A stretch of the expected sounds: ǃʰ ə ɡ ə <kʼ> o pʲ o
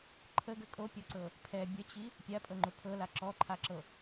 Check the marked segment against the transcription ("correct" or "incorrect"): correct